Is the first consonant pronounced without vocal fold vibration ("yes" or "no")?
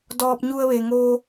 no